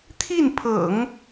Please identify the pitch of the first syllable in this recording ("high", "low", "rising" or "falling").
falling